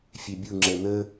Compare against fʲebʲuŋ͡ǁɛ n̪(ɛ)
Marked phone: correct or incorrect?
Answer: incorrect: ə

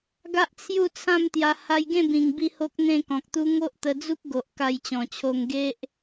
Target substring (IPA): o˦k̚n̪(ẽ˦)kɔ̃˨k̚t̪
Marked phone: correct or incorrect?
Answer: incorrect: ẽ˥˧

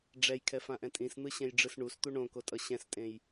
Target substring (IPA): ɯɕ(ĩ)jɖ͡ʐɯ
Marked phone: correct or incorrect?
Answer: incorrect: ẽ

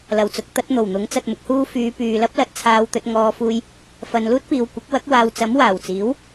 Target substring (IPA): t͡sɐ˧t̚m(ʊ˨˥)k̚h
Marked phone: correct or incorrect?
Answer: correct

